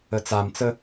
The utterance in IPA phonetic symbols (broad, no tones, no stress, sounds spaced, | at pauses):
ə t͡s a m t͡s ə